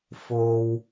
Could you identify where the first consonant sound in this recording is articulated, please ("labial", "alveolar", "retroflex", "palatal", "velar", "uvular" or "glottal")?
labial